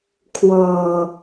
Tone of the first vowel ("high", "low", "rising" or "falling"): low